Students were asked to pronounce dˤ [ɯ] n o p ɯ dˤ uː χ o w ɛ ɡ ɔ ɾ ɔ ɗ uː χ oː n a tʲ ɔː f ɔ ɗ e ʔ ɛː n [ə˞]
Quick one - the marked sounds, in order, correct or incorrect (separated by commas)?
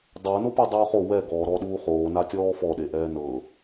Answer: incorrect, incorrect